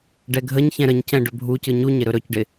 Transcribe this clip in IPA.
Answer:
ɖɛɡʱəɲçɛ̃ ɾəɲcɛ̃ ɖɵbʱucɯ ɲuɲɪ ɾɵɾɵcɖɪ

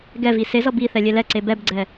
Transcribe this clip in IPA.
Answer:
ɡɛvi sezʌ biθɛ lʲelɛǀe bɛbɡ͡ǀɛ

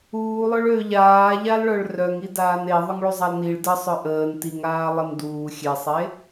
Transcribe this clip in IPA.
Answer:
uːlˠœɭ ø ʎaːʎalɭœɭ rœŋi daːne ðˤʊŋɭuzˤalniɭ dəsˤœ ʔəːn tiŋaː lˠənduː xʲesˤe

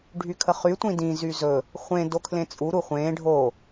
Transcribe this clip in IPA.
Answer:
ɖʱykʰəχy tʷĩdĩ zyzɵ | χʷẽ dokʰlẽt͡sʼu ɾuχʷẽː ɖʱo

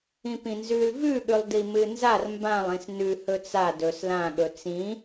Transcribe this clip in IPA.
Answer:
ĩpĩnzʉl vʉɠʉlˠdi mɨnzar mbãlˠĩs nʉhɵ t͡sa dɵs lã ɠɵt͡sĩ

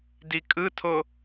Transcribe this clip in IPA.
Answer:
dikʼɯtʰo

